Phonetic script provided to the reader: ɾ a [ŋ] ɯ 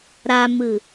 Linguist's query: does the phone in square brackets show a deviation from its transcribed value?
yes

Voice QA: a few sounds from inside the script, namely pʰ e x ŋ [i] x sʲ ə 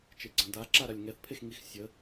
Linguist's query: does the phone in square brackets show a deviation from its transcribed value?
no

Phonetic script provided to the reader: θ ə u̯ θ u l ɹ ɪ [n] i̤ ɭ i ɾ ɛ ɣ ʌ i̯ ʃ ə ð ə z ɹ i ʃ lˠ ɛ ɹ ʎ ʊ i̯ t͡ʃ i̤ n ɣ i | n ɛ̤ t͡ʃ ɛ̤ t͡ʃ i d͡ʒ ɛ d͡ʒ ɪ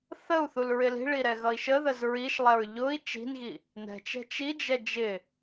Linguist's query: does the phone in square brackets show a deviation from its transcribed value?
yes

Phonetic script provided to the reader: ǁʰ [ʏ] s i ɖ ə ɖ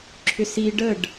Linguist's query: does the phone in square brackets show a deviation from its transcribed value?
no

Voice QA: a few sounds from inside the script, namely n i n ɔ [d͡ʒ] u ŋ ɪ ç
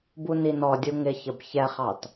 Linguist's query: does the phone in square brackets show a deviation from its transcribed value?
yes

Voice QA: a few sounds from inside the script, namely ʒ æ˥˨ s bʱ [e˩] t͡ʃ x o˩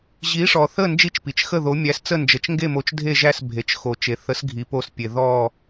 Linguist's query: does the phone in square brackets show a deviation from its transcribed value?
no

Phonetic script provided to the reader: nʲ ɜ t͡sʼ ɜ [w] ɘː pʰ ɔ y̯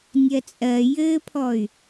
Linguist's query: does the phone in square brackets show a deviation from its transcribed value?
yes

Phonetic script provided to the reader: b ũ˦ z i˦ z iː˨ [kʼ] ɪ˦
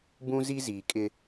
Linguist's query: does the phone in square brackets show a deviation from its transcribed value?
no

